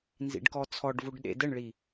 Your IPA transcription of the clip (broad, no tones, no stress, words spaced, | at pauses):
nzḭɖkɔt͡sʰɔɖvuɖ ɗḛdəɳɭi